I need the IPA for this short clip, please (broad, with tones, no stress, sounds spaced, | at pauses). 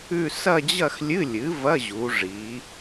ʉ˥˧ s ɐ˥˧ d͡ʑ ɐ˥˧ x lʲ ɨ˧˥˧ lʲ ɨ˩˥ v ɐ˧˥˧ ʑ u˩˧ ʐ i˩˧